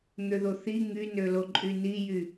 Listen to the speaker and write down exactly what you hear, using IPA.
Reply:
n̪ ø ð o θ i ŋ y n ø l o ǃʼ y n i j y

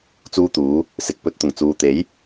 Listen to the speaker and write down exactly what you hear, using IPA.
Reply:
t͡s uː˥ t̪ uː˨˥ | s ɪ˨ k̚ p ɵ˧ t̚ t̪ ʊ˨˩ ŋ t͡s uː˨ t̪ e˨˥ j

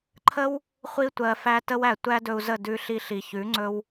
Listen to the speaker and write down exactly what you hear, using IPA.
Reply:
ǃʰ ə˦ w | χʷ i˧ tʷ ɜ˨ f æ˧ t ə˧ w æ˨ tʷ æ˦ d ɵ˧ u̯ z ə˦˨ d ʉ˧ ɬ i˧ ɬ i˨ ç ʉ˨˦ ŋ͡ǀ ɵ˧ w

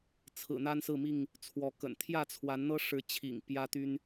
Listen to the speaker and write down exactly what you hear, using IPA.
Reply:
t͡sʰ ɹ̩˨˩ n̪ a˦ n s ɹ̩˥˨ m i˥˨ ŋ | t͡sʰ w ɔ˨˦ k ə̰˨˩ n t̪ʰ j ä˥˨ t͡sʰ w a˨˦ n n̪ ɤ˦ ʂ ɻ̩˨˦ t͡ɕʰ ḭ˨˩ ŋ p j ä˦ t̪ y˦ n

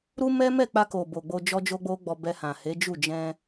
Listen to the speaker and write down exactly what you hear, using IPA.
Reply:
ɾ u˦ m ɛ˦ m ɛ˦˨ k͡p a˧ k o˨ b o˨ ɡ͡b o˧ d͡ʒ ɔ˦ d͡ʒ o˦ ɡ͡b o˦ ɡ͡b ɔ˧ b ɛ˧ h ã˨ h e˨˦ d͡ʒ u˦˨ d͡ʒ ɛ̃˧

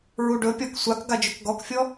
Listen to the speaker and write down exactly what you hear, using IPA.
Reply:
ɹ u ɖ ɵ pʲ ɔ k sʷ a k ɡ a d͡ʒ ɵ k ɡ ɔ k fʲ ɔ

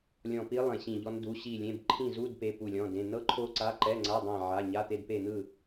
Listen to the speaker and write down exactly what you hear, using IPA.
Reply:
lʲ ɔ̃˦˨ p i˦˥ lˠ ẽ˦˨ ɕ ĩ˦˨ ʎ ɔ˦˥ n d u˧˥˧ ɕ i˦˨ lʲ ẽ˧˥˧ b ǃʰ ĩ˦˨ z u˧˥˧ d p e˧˥˧ p u˦˨ lʲ ɔ̃˧˥˧ d ẽ˧˥˧ n ɤ˦˥ ǃʰ o˦˥ ǀ a˧˥˧ ǃ ɛ˧˥˧ ŋ͡ǀ a˧˥˧ dˤ ã˦˨ ʕ a˧˥˧ ɲ a˧˥˧ t̪ e˦˨ d p e˦˨ n̪ ɯ˦˨

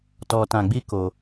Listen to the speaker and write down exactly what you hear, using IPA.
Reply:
t ɔ˧ t ã˧ ɡ͡b i˦ k o˧

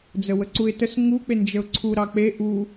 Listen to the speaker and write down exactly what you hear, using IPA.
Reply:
d͡z ə w ə ǀ u ɪ̯ t ə s ŋ u k͡p e n d͡ʒ ə ʊ̯ ǀʰ u ɾ ɑ k͡p e ʔ u

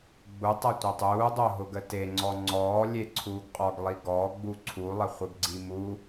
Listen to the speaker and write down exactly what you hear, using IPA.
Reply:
ɡ͡b u tˤ ɤ tʷ œ tˤ uː dˤ o ɦ ʊ ɡ ə t e ŋ͡ǀ ɔ ŋ͡ǀ ɔː lʲ e ǀʰ uː ɡ qʼ ɔ ɡ lˠ i ɡ ɔː ɡ͡b u ǀʰ u lˠ ə χʷ ə ɡ ɡ͡ǀ i m u

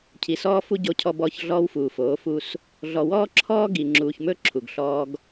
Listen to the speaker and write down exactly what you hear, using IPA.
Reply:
cʰ i˨ s ɔː˦ f u˦ ɟ o˦ cʰ ɔ˦ b ɔː˦ ç ɮ ɔː˦ w f uː˨ f oː˨˦ f u˦ s | ɮ ɔ˨ w ɔː˦ ǁʰ ɔː˦ ɡ i˨ ŋ͡ǁ uː˨ ç m ɵ˦ ǁʰ u˨ ɡ ɬ ɔː˦ ɡ

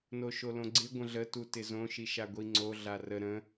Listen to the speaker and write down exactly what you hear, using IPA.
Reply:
n o ʃ o l õ ɡ͡ǀ ɪ ɡʷ ə̃ ɮ ə t u t ɪ z õ ʃ i ʃ a ɡʷ i ŋ͡ǀ o ɮ a r ə ɾ ə̃

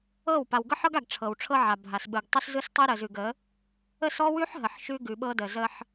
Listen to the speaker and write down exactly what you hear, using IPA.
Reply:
ɤ˦˨ w p a˨ w ɡ ɤ˦ ħ ɤ˦ ɡ a˨ ɡ ʈ͡ʂʰ ɤ˨ w ʈ͡ʂʰ ɤ˦ ʕ a˨ bʱ a˨ s ɓ ɯ˨ ɡ tˤ ə˦ s z ɯ˦ s tˤ ɯ˦ ɾ ə˨ z ʉ˨ ɡ ə˨˦ | ə˦˨ s ɔ˦ w ʉ˦ ħ ɦ ə˨ ħ ʃ ʉ˦ ɡ ʉ˨ ɓ ɤ˦ d ə˨ z ə˦ ħ

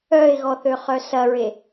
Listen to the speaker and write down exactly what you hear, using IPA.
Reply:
œ ɪ̯ ɣ ɔ θ ø χ œ s ɐ ɹ e

